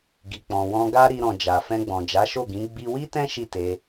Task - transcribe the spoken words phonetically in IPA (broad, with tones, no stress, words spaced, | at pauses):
ɡi˨k͡pɔ̃˨wɔ̃˧ ɡa˦ɾi˧ɾɔ̃˨ d͡ʒa˨ fɛ̃˧ɡ͡bɔ̃˨ d͡ʒa˨˦ʃo˦˨ɡĩ˨˦ ɡ͡bi˦ wi˦tɛ̃˦ ʃi˦˨te˧